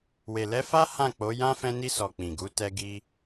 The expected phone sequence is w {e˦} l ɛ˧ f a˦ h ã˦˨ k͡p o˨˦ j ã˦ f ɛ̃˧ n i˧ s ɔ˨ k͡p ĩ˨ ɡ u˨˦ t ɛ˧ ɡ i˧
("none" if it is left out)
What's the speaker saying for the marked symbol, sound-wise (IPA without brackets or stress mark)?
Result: e˨